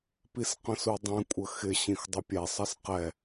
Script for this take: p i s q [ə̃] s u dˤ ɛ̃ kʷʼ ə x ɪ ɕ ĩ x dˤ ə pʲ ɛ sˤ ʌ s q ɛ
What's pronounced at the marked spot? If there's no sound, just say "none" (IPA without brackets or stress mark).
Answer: ə̃